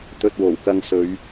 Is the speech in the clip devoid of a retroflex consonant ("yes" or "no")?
yes